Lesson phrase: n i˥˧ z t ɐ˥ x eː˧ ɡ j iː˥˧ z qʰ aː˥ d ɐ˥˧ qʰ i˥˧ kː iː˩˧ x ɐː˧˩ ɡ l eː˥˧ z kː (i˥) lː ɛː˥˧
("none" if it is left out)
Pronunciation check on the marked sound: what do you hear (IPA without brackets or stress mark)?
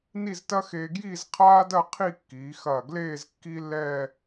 i˥